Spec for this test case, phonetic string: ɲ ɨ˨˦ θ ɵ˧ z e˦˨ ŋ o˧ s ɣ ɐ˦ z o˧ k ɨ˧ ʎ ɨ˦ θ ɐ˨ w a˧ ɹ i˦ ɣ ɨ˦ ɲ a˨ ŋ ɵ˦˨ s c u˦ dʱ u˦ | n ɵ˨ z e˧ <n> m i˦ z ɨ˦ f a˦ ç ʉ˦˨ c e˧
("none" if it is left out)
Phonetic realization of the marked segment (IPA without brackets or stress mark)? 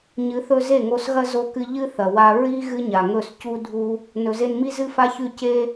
n